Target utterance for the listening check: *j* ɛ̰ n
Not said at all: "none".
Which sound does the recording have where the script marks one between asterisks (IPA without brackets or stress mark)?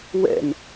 w